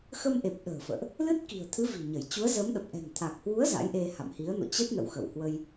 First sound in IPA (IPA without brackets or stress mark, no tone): x